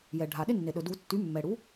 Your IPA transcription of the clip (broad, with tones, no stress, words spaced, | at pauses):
jɛ˩ɖʱa˩ɗɪ˦nːe˩ ɗɵ˩du˨˩˦tːy˩˥ mːɛ˩ɽu˩˥